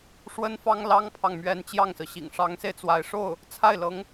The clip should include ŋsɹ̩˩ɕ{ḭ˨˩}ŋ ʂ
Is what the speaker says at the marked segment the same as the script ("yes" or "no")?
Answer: yes